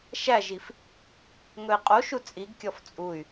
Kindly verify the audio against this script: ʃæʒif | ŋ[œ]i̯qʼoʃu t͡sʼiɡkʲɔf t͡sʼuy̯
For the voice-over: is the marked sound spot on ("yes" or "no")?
no